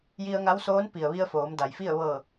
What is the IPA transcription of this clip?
j i˧ ə̯ ŋ a˧˥ w s oː˧˥ n p i˩ ə̯ ʋ i˧ ə̯ f oː˩˧ m d a˩ j f i˥˨ ə̯ ʋ ɤː˧˩

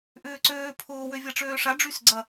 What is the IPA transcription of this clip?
ʔ ʏː ǀ øː pʰ ʊː w ø vʲ ɐ ʈ͡ʂ øː ʂ a ɖ͡ʐ y s ɡ͡ǀ ɐ

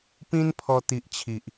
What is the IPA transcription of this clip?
p ĩ˦ n pʰ ɔ˧ t̪ i˨ ʔ t͡ɕʰ i˨ ʔ

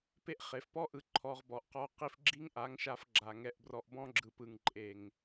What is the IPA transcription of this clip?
p e˦ ʔ χ e˨ f p ɔ˦ ʔ ɯ˧ ǃʰ ɔ˧ ʁ b ɔ˨ ʔ q ɔ˧ q i˦ f ɡ͡ǁ i˦ ŋ ʔ a˨˦ ŋ ʃ a˧ f ɡ͡ǁ a˨ ŋ ɛ˧ ʔ b r ɔ˧ ʔ b ɔ̃˦ ɡ͡ǁ ɯ˨ p ɯ˨ ŋ ǃʼ e˨ ŋ

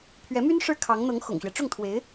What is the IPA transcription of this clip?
pʰ ɥ ɛ˧˥ m y˥ n ʂ ɻ̩˥˩ kʰ ɑ˧˥ ŋ n̪ ɤ˧˥ ŋ x ʊ̰˨˩ ŋ ɕ ɥ ɛ˦ ʈ͡ʂ ʊ˥˩ ŋ t̪ʰ w e˧˥ ɪ̯

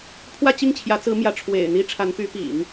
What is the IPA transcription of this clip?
pʰ w ä˥˧ t͡ɕ i˥˩ ŋ t͡ɕʰ j ä˧˥ t͡s ɹ̩˧˥ m j ä˧˥ ʈ͡ʂʰ w ḛ˨˩ ɪ̯ n̪ i˥ ʈ͡ʂʰ a˧˥ n p y˧˥ p ḭ˨˩˦ ŋ

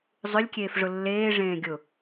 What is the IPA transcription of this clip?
zˤ ʏ lʲ kʲ eː f ʐ ʊ lː eː ʐ ẽː ɡʲ ʊ

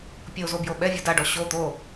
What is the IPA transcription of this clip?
pʲ o z o b j o ɓ ɛ vʲ o d a ɖ ɔ ɕ o t̪ o

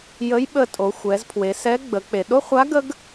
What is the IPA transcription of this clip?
j ə˧˥ j ɓ ə˧ tʼ o˩˧ xʷ ɛ˩˧ z pʰ w e˩˧ s ɛ˧˥ ɡ͡b ə˩˧ k͡p e˩ ɗ o˥ χʷ a˧˥ ɡ ə˥ ɡ

